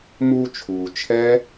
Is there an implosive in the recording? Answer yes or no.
no